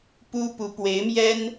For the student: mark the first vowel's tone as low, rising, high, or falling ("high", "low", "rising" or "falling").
high